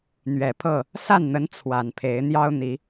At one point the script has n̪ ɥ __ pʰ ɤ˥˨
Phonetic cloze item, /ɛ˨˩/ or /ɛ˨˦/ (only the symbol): ɛ˨˩